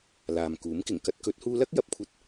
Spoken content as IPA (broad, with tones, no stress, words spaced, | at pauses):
laː˨mkuː˨˥mkɪ˨˩ŋ kɐ˧t̚kɵ˨˥t̚huː˧lɐ˥k̚ jɐ˨˥p̚kʷʰɐ˥t̚